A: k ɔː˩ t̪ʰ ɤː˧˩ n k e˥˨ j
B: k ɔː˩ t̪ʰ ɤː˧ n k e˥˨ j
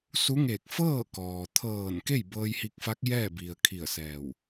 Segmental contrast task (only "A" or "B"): A